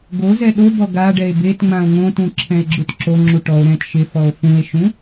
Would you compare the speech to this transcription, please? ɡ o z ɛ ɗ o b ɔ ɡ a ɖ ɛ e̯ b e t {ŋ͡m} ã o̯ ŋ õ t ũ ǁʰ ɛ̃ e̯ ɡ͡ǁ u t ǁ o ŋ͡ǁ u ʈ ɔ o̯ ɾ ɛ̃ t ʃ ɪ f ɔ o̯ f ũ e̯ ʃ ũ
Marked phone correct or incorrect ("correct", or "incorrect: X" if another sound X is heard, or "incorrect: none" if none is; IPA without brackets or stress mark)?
correct